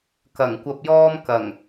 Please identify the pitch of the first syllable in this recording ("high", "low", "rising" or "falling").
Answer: low